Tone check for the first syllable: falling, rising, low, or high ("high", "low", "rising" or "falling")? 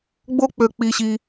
high